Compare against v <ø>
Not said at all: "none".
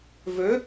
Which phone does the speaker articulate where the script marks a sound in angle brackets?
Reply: ø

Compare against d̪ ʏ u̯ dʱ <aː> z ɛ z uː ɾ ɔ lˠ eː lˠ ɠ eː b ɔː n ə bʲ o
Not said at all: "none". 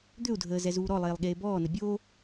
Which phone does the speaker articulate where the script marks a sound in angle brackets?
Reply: əː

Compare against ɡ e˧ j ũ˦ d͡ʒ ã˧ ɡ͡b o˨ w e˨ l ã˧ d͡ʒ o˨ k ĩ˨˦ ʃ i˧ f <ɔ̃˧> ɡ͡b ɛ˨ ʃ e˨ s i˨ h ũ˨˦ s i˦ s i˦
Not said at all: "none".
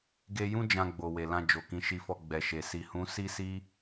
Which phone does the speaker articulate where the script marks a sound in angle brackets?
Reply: ɔ˧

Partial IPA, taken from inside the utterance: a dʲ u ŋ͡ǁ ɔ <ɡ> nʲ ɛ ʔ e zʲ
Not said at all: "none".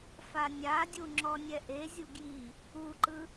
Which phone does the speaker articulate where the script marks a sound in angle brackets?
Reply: none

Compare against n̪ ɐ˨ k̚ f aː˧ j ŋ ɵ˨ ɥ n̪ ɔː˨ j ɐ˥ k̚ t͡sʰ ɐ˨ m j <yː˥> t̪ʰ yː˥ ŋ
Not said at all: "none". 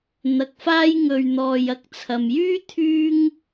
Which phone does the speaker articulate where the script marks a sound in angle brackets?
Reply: yː˥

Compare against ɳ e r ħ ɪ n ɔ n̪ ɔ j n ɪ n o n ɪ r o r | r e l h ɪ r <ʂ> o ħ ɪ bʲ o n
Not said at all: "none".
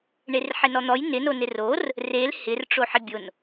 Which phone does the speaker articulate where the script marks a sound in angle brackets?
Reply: ʈ͡ʂ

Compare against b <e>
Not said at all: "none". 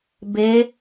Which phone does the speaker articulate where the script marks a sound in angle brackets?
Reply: e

